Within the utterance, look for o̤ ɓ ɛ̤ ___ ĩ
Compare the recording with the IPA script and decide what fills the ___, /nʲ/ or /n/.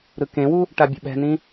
n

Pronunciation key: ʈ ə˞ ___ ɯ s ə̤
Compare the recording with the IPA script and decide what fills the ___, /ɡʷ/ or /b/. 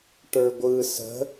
ɡʷ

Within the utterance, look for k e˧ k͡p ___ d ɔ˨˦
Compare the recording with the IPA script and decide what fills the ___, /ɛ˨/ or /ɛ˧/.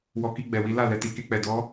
ɛ˨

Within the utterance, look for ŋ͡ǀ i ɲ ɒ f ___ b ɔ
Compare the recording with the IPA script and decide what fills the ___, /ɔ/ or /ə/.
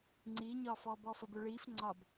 ɔ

